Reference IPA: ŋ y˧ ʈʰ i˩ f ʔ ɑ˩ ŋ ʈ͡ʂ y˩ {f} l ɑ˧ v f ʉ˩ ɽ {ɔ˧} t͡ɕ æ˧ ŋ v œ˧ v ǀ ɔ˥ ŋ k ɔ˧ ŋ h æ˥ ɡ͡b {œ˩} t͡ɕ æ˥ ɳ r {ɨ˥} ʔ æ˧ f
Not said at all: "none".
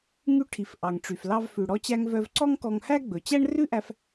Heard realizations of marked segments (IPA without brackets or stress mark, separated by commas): f, ɔ˧, ɵ˩, ʉ˥